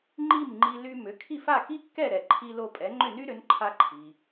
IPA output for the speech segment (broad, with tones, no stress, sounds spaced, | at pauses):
ŋ͡ǃ i˥˩ m ŋ͡ǃ i˧ l y˧ m ʏ˩˥ kʰ i˥˩ f a˥˩ k i˥ kː ɛ˥˩ ɾ ɛ˩ ǃʰ i˧ l o˧ pʼ ɛ˩˥ ŋ͡ǃ ʏ˥˩ n y˥ ɾ ʏ˩˥ n ǃʰ a˧ ǃʰ i˩